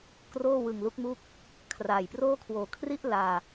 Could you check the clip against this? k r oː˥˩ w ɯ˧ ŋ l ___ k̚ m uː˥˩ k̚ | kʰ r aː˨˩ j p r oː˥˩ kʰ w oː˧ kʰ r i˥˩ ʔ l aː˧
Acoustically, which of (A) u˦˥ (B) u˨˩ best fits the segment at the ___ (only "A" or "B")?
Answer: A